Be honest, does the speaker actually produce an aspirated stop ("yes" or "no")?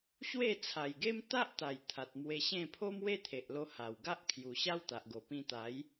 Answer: yes